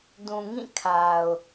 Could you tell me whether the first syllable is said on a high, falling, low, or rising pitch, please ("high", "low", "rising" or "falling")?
low